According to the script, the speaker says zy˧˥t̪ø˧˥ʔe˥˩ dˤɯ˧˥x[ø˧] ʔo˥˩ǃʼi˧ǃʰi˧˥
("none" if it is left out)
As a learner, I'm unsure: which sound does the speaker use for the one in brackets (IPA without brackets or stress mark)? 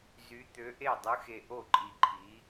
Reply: e˧